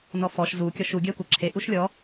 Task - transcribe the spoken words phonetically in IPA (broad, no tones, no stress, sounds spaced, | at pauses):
n ɔ f ɔ ʃ z u kʲ ɔ ʃ u ɡʲ ɜ kʷ ə ǁʰ e ʔ u ʃ lʲ ɔ